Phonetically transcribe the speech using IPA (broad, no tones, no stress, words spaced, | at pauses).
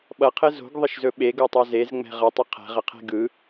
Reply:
ɓʌqʰɘ zo̤ɡðˤəʃzɵ ɓeɡotˤo zezŋ͡mɛ̤ ʁʌtˤɘ qʰɛ̤ʁəqʰɛ̤ ɡɯ